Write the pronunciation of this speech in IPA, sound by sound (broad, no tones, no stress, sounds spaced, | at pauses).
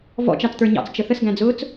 v ɔ̰ t͡ʃ ɑ t͡s t̪ ə˞ ɲ ɑ̰ t͡s t͡ʃ ə θ ə s ɡ æ̃ d͡z ʊː t͡s